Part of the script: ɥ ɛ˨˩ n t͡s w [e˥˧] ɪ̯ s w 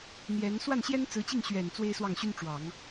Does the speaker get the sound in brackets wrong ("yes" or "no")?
yes